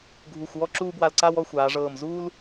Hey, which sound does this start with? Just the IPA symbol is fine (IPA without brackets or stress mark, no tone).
ɡʱ